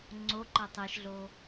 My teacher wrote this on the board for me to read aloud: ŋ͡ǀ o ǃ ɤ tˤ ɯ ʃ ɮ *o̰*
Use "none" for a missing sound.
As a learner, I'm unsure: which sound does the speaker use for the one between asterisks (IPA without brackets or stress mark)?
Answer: o